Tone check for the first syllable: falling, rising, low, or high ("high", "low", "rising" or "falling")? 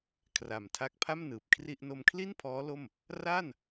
low